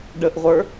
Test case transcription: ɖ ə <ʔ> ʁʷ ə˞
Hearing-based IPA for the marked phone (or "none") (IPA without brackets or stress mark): ʔ